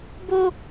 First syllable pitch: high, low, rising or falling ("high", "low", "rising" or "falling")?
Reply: high